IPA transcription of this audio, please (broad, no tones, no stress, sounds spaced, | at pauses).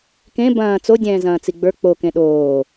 k ẽ b ɐ̃ː t͡s o dʲ ɛ̃ː z ɐ̃ː t͡s i ɡ͡b ə˞ k͡p o k ẽ ɗ oː